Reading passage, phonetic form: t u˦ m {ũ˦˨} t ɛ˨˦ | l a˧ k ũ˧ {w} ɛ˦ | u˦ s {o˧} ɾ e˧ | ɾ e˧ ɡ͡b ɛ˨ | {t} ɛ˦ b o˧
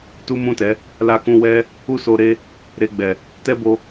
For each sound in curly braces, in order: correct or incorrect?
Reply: correct, correct, correct, correct

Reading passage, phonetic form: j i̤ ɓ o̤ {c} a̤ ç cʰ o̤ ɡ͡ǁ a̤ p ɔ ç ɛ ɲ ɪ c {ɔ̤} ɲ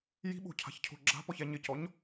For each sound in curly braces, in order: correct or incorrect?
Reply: incorrect: cʰ, incorrect: ɔ

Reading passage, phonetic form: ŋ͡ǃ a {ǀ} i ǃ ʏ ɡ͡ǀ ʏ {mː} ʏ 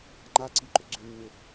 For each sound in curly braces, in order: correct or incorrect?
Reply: correct, correct

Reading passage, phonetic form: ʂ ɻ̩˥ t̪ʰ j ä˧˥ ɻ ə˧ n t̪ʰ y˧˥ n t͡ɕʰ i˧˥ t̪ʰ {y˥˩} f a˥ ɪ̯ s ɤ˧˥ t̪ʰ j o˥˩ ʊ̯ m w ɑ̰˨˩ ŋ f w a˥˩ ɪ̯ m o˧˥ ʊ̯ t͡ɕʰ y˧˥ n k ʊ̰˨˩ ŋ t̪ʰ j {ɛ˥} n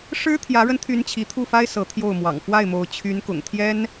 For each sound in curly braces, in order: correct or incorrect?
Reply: incorrect: u˥˩, correct

